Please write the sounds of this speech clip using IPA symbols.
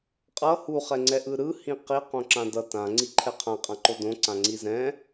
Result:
qʼ ʌ h u χ ɛ ŋ͡ǀ ɛ ʔ ɯ ɾ ɯ h ĩ q i q õ ǁ ã d ʌ t ã ŋ͡ǀ i ǃʰ ɛ qʰ ã qʼ ã ǃ o d õ ǀ ã ŋ͡ǀ i z ɛ̃

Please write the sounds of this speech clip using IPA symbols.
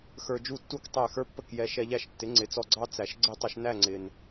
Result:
x ə˞˧ d͡ʒ u˥˩ tː u˥˩ k tˤ æ˥˩ x ə˞˥ pː ə˥˩ k j ɛ˧ ʃ ɛ˧ ʎ æ˥˩ ʃ tː ɪ˩˥ ŋ͡ǀ ɪ˩˥ t͡s ɔ˧ ɡ͡ǀ ɑ˥ t͡s æ˩ ʃ ɡ͡ǀ ɪ˥˩ tˤ ʊ˧ ʃ n æ˥˩ ŋ͡ǀ ɪ˩ n

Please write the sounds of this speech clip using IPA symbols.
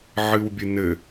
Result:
ʕ ɨ w bʲ ɨ n ɘ

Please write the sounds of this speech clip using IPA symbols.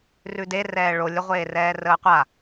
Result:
r ʉ d e r ɛː ɭ o lʲ ə ʁʷ eː r ɛː r əː qʷ a

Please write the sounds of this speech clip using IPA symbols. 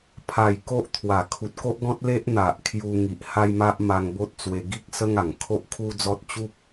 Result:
pʰ a˨˩ j k o˦ ʔ t̪ʰ w a˨˩ kʰ u˨ t̚ k o˦ ʔ ɡ ɔ̃˦ t̚ l e˦ ʔ n̪ a˨ ʔ kʰ j u˧ ŋ i˨ ʔ h a˦ j m a˦ ʔ m a˧ ŋ b o˦ t̚ t͡s w e˧ ɡ i˦ k̚ s ə˦ ŋ a˨˩ ŋ kʰ o˦ ʔ kʰ u˦ d͡z ɔ˦ t̚ t͡ɕ u˦ p̚

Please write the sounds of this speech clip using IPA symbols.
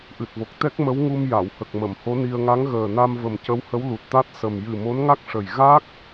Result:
ʔ ɨ˨˩ t̚ v o˨˩ k̚ t̪ ɛ˦˥ k̚ m ə˧˥ w ŋ u˧ m j a˨˩˨ w h ə˨˩ k̚ m ə˨˩˨ m h o˧˥ n i˧ ə̯ ŋ a˧˥ ŋ ɣ əː˨˩ n a˧ m v ə˨˩ m c ə˧˥ w h ə˧˥ w l u˨˩ t̚ t̪ a˦˥ t̚ s ə˨˩ m j ɨ˨˩ m o˧˥ n ŋ a˦˥ k̚ ʂ ə˨˩ j ɣ a˦˥ k̚

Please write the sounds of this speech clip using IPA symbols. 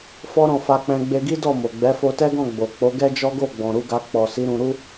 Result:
f ɔ˦ ɾ ɔ̃˦˨ f a˧ k͡p ɛ̃˧ ɡ͡b e˧ ɡ i˦ d ɔ˦˨ m o˨ ɡ͡b ɛ˨˦ f o˧ t ɛ˦ ɡ ɔ̃˦˨ ɡ͡b o˨ k͡p o˨˦ ɡ ɛ˦ d͡ʒ ɔ˦ ɡ o˦˨ ɡ͡b ɔ̃˨ ɾ u˨˦ ɡ a˧ k͡p ɔ˨ s i˨˦ ɾ ũ˧ ɾ u˦

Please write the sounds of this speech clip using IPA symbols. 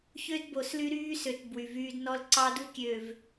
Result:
ç ø˦ d b o˨ s l y˦ ɾ yː˦ s ø˨ t b w y˨ v yː˦ d n ɔ˦ l ǀ ɑ˦ d u˦ kʲ ø˨ v

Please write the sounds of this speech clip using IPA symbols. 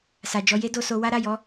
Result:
s a˨ d͡ʒ ɔ˧ j e˦ d o˧ s o˧ w a˦ ɾ a˦˨ j ɔ˨˦

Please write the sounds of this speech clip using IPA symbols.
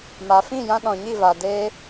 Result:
m a˨ f ĩ˦˨ j ã˧ ɗ ɔ̃˨ ɲ i˦˨ v a˧ d eː˧

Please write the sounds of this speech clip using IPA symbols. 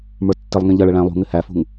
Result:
m ə˞ tː ɪ lˠ ŋ ĩ ʎ ʌ ɭ ə ɭ æ̃ lˠ ṳ ŋ ɪ h æ f ṳ ŋ

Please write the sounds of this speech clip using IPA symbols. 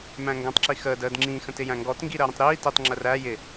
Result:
m æ̃ ŋ ɡ æ̃ tˤ ǁ i x əː d əː d ŋ͡ǁ ĩ x ə̃ t ɪ j æ̃ ŋ ɡ ɔ t ŋ ɡ i ɾ əː ɾ ə̃ tˤ ɾ iː t i tˤ ŋ͡ǁ ə r æ j ɪ

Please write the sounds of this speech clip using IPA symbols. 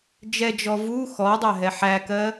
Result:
d͡ʒ ɛ d͡ʒ ɔ v u x ɔ dˤ æ ɦ ɛ ħ æ k ɜː

